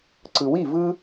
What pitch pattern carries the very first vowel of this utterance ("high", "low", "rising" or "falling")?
low